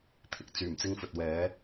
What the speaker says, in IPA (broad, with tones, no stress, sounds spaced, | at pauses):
t̪ʰ ɪ˧ k̚ t͡s yː˨˩ m t͡s ɪ˧ ŋ f ɵ˨ t̚ w ɛː˨˥